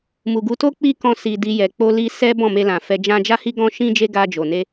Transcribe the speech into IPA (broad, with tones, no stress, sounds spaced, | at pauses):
m u˨ ɡ u˨˦ t o˦ k͡p i˦ k ɔ̃˧ s i˨ d i˧ j ɛ˨ k͡p o˧ l i˧ s ɛ˦ b ɔ̃˦˨ m e˧ l ã˨ f ɛ˧ d͡ʒ ã˦ d͡ʒ a˦ h i˦ ɡ ɔ̃˦ ʃ ĩ˦ d͡ʒ e˦ ɡ a˧ d͡ʒ o˨ n e˧